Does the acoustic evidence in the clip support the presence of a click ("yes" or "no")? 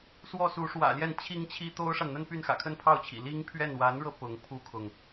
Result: no